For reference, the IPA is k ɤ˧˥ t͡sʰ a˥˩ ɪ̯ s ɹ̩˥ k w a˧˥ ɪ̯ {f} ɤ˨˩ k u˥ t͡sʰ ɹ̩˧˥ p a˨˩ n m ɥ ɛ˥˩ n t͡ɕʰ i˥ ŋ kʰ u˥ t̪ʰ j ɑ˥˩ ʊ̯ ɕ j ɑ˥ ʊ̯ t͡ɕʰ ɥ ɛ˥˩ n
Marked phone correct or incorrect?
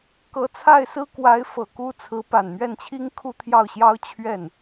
correct